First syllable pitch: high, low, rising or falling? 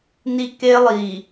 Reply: high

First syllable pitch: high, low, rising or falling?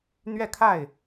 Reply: falling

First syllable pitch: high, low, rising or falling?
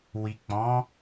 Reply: low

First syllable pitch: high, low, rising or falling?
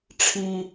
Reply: high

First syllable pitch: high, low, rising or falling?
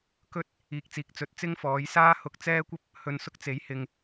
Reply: high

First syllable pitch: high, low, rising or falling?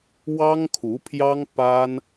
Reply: high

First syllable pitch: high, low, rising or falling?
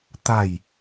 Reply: falling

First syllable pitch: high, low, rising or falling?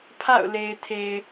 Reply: falling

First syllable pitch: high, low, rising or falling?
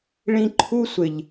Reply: high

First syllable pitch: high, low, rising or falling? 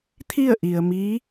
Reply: falling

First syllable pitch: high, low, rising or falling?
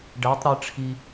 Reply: rising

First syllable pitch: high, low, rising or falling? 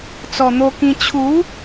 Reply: low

